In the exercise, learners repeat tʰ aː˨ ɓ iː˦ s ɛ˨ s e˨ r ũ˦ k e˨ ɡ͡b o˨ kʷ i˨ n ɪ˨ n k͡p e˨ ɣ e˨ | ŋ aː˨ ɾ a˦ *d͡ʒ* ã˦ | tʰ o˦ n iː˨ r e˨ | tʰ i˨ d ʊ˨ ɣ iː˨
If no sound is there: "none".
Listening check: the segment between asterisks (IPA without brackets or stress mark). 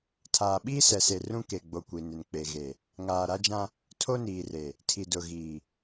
d͡ʒ